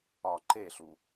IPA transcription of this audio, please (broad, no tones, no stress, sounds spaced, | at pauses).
ɒ ǃ e ɬ u